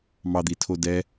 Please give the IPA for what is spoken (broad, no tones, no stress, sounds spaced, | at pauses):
m ɑ d̪ i tʰ o d ɛ